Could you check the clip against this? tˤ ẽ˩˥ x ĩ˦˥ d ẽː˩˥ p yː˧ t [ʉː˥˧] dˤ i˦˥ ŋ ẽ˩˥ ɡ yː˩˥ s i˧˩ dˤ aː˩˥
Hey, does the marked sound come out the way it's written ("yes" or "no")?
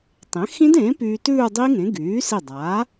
yes